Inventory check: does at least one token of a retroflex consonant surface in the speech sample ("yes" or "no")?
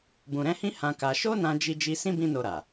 no